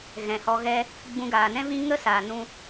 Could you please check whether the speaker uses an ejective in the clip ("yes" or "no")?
no